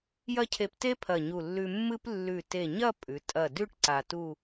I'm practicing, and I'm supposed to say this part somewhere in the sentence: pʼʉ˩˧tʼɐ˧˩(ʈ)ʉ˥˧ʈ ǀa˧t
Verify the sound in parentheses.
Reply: incorrect: d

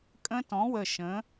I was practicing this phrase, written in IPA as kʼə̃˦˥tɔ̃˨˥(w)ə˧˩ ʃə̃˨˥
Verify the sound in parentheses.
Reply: correct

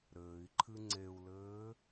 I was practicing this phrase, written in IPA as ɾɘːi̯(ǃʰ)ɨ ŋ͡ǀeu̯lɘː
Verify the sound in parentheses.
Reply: correct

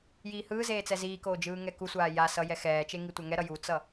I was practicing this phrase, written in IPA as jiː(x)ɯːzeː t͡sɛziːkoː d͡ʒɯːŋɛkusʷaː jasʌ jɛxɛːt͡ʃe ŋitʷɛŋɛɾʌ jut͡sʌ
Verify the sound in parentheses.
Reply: incorrect: h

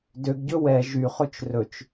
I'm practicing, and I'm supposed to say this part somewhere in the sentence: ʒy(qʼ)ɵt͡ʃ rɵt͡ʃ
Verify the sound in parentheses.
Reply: incorrect: χ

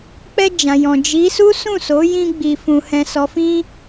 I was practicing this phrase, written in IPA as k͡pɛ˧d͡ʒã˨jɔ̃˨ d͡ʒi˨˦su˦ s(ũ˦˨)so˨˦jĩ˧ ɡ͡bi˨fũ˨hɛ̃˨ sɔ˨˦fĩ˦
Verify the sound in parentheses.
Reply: correct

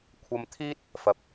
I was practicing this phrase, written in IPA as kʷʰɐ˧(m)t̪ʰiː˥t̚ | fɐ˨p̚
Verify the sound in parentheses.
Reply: correct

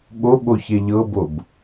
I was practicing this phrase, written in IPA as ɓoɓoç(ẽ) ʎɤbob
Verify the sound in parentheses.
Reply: incorrect: e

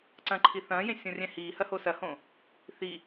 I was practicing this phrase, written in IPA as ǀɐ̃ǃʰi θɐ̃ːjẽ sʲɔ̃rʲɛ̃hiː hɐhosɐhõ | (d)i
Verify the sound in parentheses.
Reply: incorrect: θ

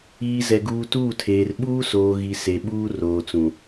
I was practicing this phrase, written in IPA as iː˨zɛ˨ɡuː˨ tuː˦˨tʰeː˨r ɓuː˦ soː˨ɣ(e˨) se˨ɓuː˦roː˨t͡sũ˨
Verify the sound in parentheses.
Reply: incorrect: i˨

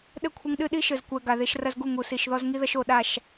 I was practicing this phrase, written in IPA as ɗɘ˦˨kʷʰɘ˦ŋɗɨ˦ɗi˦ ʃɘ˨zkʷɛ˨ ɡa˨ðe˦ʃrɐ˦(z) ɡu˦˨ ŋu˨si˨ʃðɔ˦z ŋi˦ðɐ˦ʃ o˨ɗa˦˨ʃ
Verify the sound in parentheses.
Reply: correct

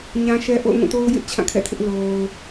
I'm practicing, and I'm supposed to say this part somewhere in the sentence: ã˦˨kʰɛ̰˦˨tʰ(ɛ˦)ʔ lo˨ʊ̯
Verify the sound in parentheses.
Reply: incorrect: ɪ˦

